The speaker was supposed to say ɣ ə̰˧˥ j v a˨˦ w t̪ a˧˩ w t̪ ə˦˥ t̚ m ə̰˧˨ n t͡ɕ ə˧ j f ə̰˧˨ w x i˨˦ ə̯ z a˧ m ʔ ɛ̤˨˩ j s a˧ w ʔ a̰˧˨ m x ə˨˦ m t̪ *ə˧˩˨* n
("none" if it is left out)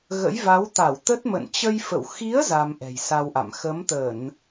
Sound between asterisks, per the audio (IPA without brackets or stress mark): ə˧˩˨